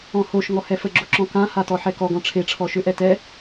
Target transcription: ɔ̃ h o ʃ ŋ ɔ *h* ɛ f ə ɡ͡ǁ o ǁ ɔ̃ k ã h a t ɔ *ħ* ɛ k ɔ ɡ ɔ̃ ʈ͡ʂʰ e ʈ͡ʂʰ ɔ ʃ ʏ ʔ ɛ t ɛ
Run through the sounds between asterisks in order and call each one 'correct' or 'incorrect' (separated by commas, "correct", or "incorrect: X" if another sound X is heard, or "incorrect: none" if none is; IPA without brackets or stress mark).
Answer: correct, correct